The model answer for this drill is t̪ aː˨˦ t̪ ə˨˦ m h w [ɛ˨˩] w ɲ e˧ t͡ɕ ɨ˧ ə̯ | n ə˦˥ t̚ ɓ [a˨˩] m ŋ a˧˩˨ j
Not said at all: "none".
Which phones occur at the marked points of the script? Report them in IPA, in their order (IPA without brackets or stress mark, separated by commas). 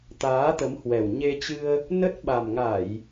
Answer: ɛ˨˩, a˨˩